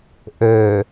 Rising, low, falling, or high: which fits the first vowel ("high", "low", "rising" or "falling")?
low